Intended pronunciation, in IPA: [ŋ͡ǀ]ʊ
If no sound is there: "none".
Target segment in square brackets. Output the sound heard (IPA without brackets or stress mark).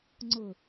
ŋ͡ǀ